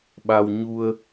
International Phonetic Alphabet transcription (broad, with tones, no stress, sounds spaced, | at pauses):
ɓ a˧ w ɲ u˧ ə̯